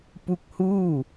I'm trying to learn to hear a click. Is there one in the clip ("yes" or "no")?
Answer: no